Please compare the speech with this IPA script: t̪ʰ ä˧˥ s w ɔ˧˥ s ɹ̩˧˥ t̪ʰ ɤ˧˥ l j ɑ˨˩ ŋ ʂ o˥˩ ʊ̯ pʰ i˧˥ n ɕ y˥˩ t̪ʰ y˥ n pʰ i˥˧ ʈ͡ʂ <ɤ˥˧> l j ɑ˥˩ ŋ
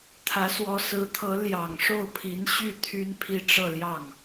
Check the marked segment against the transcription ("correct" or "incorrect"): correct